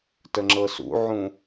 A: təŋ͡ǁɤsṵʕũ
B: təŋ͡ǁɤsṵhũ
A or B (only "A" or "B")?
A